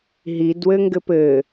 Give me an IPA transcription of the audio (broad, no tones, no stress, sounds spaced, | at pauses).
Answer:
ɦ i d w ɘ ŋ ɡ ɘ p ɘ